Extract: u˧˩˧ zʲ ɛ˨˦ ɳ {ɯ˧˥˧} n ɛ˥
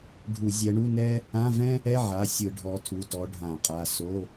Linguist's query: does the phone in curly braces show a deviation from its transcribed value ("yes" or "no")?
yes